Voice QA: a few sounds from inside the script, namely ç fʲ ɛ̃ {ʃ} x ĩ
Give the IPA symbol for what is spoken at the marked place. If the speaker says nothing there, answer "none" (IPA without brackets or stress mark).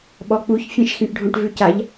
ʃ